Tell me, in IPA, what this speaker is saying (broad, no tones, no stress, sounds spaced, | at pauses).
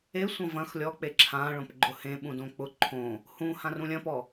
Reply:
e sʷ ɐ̃ v ɐ̃ x lʲ ɔ k͡p e ǁʰ ã ɭ õ p ɡ͡ǃ ʊ h ẽ ɓ ũ d õ k͡p ʊ ǃʰ õ | h ũ h ã r ũ lʲ ɐ̃ p ɔ